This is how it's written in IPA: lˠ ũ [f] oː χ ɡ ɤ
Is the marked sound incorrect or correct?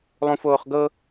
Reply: correct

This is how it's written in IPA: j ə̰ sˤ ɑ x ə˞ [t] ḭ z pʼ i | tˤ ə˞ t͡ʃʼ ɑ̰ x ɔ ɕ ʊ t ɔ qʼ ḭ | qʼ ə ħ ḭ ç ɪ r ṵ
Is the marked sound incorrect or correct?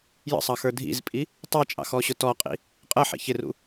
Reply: incorrect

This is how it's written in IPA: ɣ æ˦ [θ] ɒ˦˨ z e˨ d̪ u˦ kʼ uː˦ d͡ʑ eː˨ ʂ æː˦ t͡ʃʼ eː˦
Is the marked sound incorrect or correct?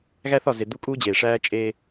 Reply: correct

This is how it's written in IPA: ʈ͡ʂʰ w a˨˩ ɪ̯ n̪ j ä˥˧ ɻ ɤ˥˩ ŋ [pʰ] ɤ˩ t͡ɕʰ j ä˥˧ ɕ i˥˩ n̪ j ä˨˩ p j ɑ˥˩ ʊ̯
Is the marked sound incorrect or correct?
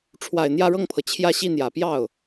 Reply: correct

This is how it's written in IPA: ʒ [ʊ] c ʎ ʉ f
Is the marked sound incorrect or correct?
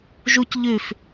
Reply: incorrect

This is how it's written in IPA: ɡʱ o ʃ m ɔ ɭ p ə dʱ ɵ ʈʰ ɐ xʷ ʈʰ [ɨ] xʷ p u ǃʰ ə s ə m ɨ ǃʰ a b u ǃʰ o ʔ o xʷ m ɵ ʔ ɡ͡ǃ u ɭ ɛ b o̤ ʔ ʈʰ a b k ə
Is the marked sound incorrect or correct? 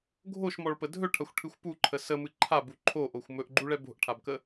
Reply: correct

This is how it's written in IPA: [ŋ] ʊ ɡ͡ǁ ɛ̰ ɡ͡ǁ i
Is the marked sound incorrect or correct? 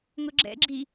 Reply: correct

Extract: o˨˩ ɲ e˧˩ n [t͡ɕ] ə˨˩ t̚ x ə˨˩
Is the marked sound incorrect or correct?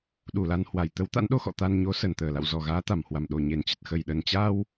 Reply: correct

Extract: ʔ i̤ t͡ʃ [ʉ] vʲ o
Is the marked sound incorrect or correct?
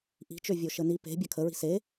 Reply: incorrect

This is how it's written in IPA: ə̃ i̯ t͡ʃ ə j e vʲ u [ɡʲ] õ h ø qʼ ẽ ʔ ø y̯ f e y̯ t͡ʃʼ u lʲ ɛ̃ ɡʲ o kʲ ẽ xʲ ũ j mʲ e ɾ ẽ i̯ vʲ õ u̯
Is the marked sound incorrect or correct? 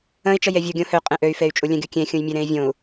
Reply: correct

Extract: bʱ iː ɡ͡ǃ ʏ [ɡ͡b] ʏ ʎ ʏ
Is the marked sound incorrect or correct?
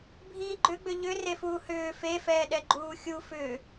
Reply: correct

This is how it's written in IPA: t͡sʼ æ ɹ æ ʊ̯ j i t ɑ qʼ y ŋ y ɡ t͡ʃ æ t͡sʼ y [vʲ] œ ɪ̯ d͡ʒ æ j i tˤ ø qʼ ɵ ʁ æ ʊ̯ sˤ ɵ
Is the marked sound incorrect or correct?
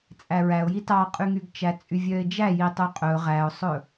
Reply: correct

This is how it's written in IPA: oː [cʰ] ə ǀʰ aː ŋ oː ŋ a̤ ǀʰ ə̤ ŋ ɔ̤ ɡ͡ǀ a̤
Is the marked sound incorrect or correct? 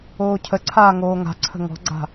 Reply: correct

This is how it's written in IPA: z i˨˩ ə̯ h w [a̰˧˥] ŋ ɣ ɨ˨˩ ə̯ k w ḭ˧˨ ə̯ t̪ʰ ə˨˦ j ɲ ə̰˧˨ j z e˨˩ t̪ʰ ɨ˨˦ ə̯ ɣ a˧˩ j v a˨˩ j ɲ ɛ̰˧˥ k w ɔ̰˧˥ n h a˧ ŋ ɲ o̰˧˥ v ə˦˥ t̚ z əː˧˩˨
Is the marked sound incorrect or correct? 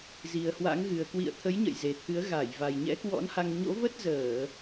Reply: correct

